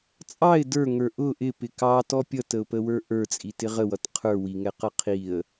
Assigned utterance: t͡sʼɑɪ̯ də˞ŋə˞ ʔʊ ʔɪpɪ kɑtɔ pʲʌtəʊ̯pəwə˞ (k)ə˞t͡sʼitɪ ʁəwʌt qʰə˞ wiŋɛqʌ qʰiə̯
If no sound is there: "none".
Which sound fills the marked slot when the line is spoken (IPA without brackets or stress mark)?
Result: ʔ